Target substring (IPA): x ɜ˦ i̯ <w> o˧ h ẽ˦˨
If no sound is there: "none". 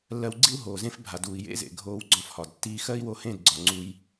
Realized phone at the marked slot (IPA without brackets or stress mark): w